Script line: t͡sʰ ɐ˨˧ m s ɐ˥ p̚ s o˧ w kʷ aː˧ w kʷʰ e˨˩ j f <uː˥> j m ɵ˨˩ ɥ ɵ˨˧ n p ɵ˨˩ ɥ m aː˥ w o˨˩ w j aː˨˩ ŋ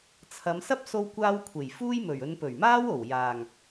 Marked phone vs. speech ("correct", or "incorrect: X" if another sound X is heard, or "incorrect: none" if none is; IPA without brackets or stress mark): correct